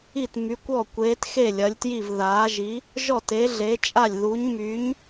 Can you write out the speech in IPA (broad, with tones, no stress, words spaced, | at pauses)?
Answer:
i˥˩tmy˨˥kʷɔ˥˩ kʷeː˨˥txe˥˩lʲɐ˨˥lʲtji˥˩v ðaː˨˥ ʒi˨˥ | ʒɔ˥˩te˨˥ɮe˨˥t͡ʃʼa˥˩lʲ ðu˨˥ɲmyː˨˥ɲ